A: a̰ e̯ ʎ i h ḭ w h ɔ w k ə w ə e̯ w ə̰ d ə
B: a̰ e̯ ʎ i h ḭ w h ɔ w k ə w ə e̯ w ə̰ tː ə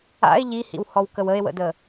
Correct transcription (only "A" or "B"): A